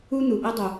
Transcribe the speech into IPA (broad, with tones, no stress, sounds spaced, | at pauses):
u˦ n̪ u˨ ʔ i˧ dˤ u˨